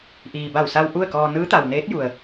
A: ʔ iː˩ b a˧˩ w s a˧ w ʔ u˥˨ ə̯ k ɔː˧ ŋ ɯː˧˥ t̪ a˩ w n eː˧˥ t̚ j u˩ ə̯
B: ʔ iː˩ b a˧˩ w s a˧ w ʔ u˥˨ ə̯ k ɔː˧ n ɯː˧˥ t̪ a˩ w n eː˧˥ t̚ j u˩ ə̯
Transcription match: B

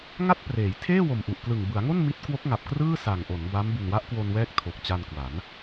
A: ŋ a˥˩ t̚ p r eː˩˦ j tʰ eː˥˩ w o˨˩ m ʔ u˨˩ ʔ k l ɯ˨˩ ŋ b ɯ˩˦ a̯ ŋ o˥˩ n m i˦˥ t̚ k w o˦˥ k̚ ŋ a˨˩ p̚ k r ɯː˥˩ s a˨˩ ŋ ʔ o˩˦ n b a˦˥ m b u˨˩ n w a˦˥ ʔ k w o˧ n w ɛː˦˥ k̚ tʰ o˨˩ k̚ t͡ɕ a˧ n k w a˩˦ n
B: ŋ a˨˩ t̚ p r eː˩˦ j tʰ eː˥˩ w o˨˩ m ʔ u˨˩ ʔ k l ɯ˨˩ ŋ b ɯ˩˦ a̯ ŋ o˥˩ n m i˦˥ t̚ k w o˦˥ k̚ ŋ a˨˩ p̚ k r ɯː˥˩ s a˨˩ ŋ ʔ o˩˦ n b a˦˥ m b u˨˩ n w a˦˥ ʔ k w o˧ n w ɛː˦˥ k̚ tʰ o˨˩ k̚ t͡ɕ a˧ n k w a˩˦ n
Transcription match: A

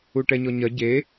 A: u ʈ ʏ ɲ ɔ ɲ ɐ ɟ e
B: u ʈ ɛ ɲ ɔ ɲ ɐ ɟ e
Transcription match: B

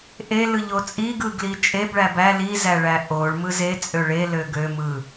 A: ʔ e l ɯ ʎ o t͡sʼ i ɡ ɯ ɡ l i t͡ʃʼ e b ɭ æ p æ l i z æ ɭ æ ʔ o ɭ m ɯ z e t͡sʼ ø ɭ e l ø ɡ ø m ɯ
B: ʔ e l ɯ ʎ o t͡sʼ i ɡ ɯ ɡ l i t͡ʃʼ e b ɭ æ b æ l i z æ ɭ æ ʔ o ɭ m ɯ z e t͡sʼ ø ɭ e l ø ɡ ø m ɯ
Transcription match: B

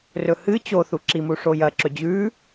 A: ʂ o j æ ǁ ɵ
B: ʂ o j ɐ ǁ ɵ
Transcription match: B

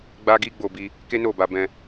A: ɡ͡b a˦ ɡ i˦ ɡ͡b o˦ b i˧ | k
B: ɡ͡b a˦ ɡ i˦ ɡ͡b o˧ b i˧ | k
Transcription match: B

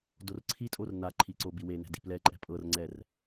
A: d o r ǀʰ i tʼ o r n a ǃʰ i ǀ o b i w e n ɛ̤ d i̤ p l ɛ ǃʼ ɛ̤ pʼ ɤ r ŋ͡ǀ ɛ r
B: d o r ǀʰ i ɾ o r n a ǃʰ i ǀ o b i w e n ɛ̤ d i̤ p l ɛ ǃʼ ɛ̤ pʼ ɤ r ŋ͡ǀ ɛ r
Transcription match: A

